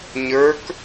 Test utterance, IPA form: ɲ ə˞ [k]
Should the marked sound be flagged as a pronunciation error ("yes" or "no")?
no